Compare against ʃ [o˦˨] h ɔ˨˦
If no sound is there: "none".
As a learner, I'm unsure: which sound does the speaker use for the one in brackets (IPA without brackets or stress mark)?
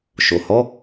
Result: o˨